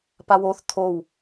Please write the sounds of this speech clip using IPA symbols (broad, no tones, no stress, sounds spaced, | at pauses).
p a w o θ t̪ʰ o w